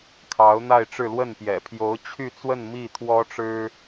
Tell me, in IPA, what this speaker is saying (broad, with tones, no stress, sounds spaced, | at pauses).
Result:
kʰ ɑ˧˥ ʊ̯ n̪ a˥˧ ɪ̯ ʈ͡ʂ ɻ̩˥˧ l w ə˥˩ n p j ɛ̰˨˩ pʰ j o˧˥ ʊ̯ t͡ɕʰ y˥˧ t͡s w ə˥˧ n m i˥˩ t̪ʰ w ɔ˥ ʈ͡ʂ ɻ̩˥